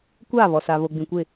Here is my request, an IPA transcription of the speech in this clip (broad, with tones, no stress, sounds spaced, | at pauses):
kʷ aː˦˨ β ɔ˨ s a˨ β o˨ ɡ͡b ĩ˨ kʷ ɪ˦˨